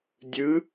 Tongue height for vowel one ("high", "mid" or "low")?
high